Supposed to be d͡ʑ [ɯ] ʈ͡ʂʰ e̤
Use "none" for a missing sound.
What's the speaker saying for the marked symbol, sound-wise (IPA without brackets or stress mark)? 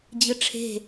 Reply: ɯ